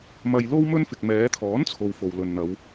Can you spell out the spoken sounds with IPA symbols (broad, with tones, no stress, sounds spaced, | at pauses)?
m ɐ˧ j l o˥ w m ɵ˥ n f ɪ˨ k̚ m ɛː˨˧ t̪ʰ ɔː˨˥ n t͡sʰ o˨ w f o˧ w l ɵ˧ n n̪ ɐ˨˧ w